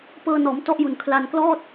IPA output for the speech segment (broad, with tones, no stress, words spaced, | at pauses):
pɤː˧nɔː˩˦m tɔ˥˩ʔju˨˩n kʰla˧nklɔː˥˩t̚